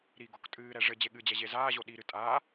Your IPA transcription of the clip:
ɾ i ɡ o k tʼ ɨː ɾ ɛ ʐ ɘ d͡ʑ e ɠ ɨ d͡ʑ ɛ ʑ e z aː ʑ o ɗ i ɾ ɨ tʼ a

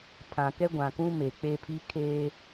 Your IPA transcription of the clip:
pʰ ã˨ k ɛ˦ ɡʷ ã˨ k ũ˦ m e˨ k͡p e˦ pʰ i˦ kʰ eː˦

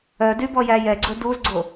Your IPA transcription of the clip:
œ d y b ɔ j æ j ɛ ɡ͡ǀ ɵ d u z ɡ͡ǀ o

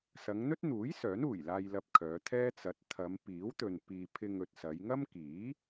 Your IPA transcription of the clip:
s ɐ˨˧ ŋ n̪ ɵ˥ t̚ n̪ uː˨˥ j s œː˨˥ n uː˨˩ j l aː˧ j l ɐ˧ p̚ kʰ œː˨˧ t̪ʰ ɛː˥ t͡s ɐ˨˥ t̚ t̪ʰ ɐ˨˧ m p iː˨˥ w t̪ ɵ˨ n p iː˧ pʰ ɪ˧ ŋ ɵ˨ t̚ s ɐ˨˧ j ŋ ɐ˥ m k iː˨˥

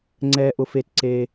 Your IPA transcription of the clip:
ŋ͡ǀ ɛː˥ ʔ ʊ˥ f e˥ t ǀ e˥

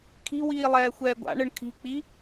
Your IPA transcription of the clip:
kʰ i̤ w iː lˠ ɛː xʷ ɛː ɡʷ a̰ ɳ ɯ ɳ kʰ i̤ k͡p i

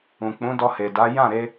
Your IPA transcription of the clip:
ũ˨ k͡p ũ˨˦ d ɔ˧ h e˨ d a˨˦ j ã˦˨ ɾ e˧

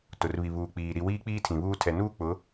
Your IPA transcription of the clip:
t ʊ˨ r β i˨ β uː˨ k͡p iː˨ ɾ i˨ w iː˦ k͡p iː˦ tʰ ĩ˨ β uː˦ tʰ ɛ˨ n uː˦ k͡p ʊ˨˦

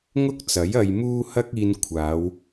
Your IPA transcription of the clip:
ŋ ʊ˥ k̚ t͡s ɐ˨˥ j ɐ˧ j m uː˥ h ɐ˥ k̚ iː˧ n kʷʰ aː˨˧ w

